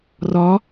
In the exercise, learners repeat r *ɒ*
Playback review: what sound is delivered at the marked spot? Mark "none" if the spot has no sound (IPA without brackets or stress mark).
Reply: ɒ